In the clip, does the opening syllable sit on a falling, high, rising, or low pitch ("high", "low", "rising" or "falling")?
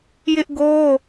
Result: high